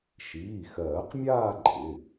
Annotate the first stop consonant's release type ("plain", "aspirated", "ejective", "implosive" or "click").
plain